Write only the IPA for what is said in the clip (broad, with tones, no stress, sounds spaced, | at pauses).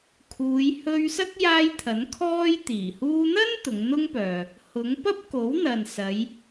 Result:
kʰ uː˨˧ j h ɵ˧ ɥ s ɐ˥ k̚ j aː˧ j t̪ʰ ɐ˨˥ n kʰ ɔː˥ j t̪ iː˨˩ h uː˧ n̪ ɐ˥ n t̪ ʊ˨˧ ŋ n̪ ʊ˥ ŋ p œː˨ | h ʊ˨˥ ŋ p ɐ˥ p̚ k o˨˥ w n̪ ɐ˨ n s ɐ˨˧ j